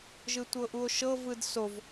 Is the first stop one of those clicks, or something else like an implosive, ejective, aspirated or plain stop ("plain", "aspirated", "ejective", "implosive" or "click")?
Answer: plain